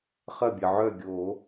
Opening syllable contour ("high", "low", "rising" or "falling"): falling